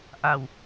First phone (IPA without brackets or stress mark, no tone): ʔ